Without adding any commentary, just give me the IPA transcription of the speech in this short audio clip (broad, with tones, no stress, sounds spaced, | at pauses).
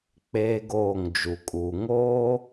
k͡p eː˦ ɡ oː˦˨ ŋ d͡ʒ u˨ kʼ uː˨ ŋ oː˦